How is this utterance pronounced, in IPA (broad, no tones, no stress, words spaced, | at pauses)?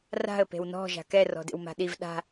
ra̤ə̯ pe̤wnɔ̤ ʒa̤kɛ rɔ̤dḛwma̤ɗiv ɗa̤